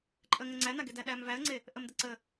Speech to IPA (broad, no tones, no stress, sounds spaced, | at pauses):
ǃʼ ə ŋ ə ŋ͡ǀ æ n a ɡ e d æ ɗ æ m v æ ə̯ ŋ͡ǀ e | ʔ ə m d ə ǀ ə